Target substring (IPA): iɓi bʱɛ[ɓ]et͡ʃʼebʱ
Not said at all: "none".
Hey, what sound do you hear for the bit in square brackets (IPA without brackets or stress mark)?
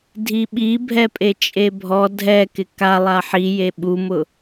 pʼ